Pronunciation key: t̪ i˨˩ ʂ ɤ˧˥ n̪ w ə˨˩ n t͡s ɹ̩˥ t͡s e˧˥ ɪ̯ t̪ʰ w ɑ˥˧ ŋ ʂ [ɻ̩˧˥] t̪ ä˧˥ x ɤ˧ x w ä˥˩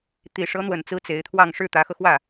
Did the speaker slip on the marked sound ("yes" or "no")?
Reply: yes